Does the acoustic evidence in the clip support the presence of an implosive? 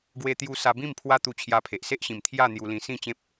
no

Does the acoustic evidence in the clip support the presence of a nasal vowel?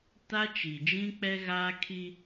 yes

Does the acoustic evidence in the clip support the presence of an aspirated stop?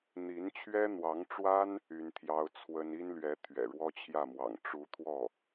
yes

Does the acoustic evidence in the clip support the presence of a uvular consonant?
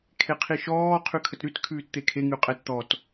yes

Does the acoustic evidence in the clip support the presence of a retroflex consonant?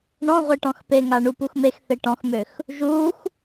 yes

